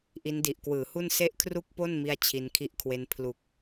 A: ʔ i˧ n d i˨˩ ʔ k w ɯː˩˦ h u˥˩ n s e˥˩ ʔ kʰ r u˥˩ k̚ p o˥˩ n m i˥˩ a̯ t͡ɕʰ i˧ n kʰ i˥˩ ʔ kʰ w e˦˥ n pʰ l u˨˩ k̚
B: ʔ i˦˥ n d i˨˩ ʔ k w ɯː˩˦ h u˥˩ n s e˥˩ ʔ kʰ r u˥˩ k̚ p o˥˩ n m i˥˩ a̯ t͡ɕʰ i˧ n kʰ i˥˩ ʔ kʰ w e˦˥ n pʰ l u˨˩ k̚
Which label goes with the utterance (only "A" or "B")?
B